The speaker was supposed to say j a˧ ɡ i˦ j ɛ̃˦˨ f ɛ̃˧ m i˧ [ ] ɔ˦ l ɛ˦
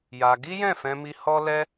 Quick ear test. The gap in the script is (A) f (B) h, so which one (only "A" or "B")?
B